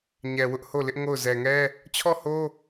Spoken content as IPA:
ɲ ɛ˨ w ʊ˦ ʔ h o˦˨ l ɪ˦ ʔ ŋ o˦˨ ʊ̯ z ɛ˨ ŋ ɛ˦ | t͡ɕʰ ɔ˦˨ h o˦

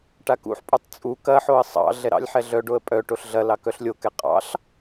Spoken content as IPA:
ʈ a k ṵ ħ pʼ u tˤ t͡sʼ u k ɐ ħ o ə̯ sˤ ɑ̰ ɮ ɛ ɾ ɑ̰ lʲ ħ ɛ ɮ œ ɖ o ə̯ pʼ œ ʈ o ɬ ɮ ɐ l ɑ k œ ɬ lʲ o k ɛ qʼ ɑ̰ ɬ

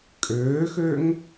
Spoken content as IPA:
kʼ øː x ø ŋ

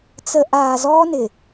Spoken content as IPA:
t͡s ə˦ ʔ aː˨ z ɔː˦ n ɪ˨

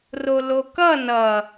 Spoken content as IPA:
r o l o k ʌ n ʌ

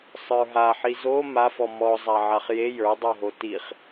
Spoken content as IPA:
sˤ ə˞ ɦ a ħ i z o m a f ɔ m ɔ zˤ a ʕ a χ j e j ə˞ dˤ o ɦ o t i χ

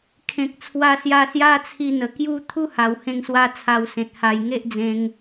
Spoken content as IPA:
kʰ ẽ˨ k̚ t͡sʰ w a˧ s j a˧ s j a˦ t͡sʰ i˧ n̪ ə˨˩ k j u˦ t̪ʰ u˦ h a˨˩ w h ẽ˧ ŋ s w a˧ t͡sʰ a˧ w s ẽ˨ t̚ h a˨˩ j ŋ e˦ ʔ d͡z ẽ˧ ŋ

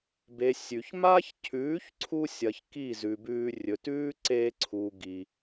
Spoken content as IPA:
b e˨ sʲ ʉ˨ ç m a˦ ç cʰ ʉː˨˦ ç ǀʰ u˧ sʲ ɐ˨ ç k i˦˨ z ʉ˨ b ʉː˧ rʲ ɵ˨ t ʉː˦ ǀ eː˧ ǀʰ u˨ ɡ i˨

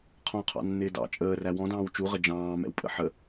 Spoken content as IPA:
qʰ ɔ̃ qʰ ɑ̰ nː ɪː d ɑ̰ t͡ʃʼ əː r æ w ɔ̃ d ɑ̃ː w t͡ʃ u ʁ ə d͡ʒ ɑ̃ː m ɛ̰ w pʼ ə̰ ħ ə

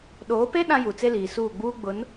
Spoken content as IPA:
ɗ oː˨˦ p e˦ ɗ ã˦ j u˨ t͡s e˦ l iː˨ s uː˦˨ ɡ͡b uː˦ ɡ͡b ʊ˨˦ n

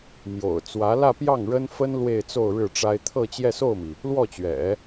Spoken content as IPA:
m j o̰˨˩ ʊ̯ t͡s w ä˧˥ l ä˥˧ p j ɑ˥˩ ŋ ɻ ə˥ n f ə˥ n l w e˥˧ ɪ̯ t͡s o˥˧ ʊ̯ ɻ ɻ̩˥˩ ʈ͡ʂ a˥ ɪ̯ t̪ʰ ɤ˥˧ t͡ɕ j ɛ˥˧ s o˥˩ ʊ̯ m i˩ | l w ɔ˥˩ t͡ɕ ɥ ɛ̰˨˩˦

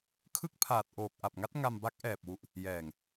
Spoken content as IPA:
kʰ ɯ˥˩ k̚ pʰ aː˨˩ t̚ ʔ oː˨˩ k̚ ʔ a˨˩ p̚ ŋ a˦˥ t̚ ŋ a˧ m b a˦˥ k̚ ʔ ɛː˨˩ p̚ w u˨˩ ʔ | j ɛː˨˩ ŋ

